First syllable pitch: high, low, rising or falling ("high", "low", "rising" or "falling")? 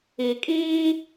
low